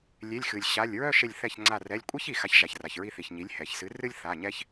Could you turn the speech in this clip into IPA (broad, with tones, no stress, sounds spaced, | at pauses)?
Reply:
lʲ e˩˧˩ lʲ x ɨ˩ lʲ ɕ a˩˧˩ lʲ ɹ œ˥˨ ʃ e˧˩ lʲ θ ɛ˧˩ ç ŋ͡ǀ a˧˩ r ɛ˩˧˩ lʲ kʷʼ e˦ ç i˩ x a˩˥ ç ʒ a˩ ç r a˩ ç ɹ i˧˩ θ i˩ ç ɲ i˩˥ lʲ h ɛ˩ ç s ɨ˩˥ r ɨ˦ lʲ θ a˩˧˩ ɲ ɛ˦ ç